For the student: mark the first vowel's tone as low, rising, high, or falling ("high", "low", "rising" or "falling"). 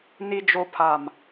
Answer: low